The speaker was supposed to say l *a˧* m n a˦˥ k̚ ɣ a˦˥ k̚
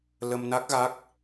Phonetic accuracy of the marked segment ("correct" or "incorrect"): incorrect